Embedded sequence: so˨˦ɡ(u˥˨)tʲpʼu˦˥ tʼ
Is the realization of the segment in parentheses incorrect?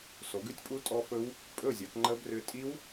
yes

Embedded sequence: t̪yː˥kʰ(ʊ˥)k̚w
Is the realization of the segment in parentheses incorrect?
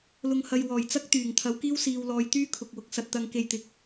yes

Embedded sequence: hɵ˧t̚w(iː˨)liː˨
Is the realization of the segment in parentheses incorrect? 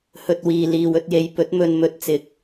no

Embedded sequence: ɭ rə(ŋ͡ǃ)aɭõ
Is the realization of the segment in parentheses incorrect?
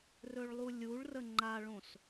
no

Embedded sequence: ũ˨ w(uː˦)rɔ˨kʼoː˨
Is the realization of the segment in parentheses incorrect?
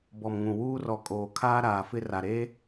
no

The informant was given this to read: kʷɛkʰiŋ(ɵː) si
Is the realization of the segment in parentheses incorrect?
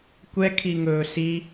no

